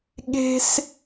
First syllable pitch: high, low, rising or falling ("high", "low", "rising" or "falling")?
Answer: high